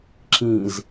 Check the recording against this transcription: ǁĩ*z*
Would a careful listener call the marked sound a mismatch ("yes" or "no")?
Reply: no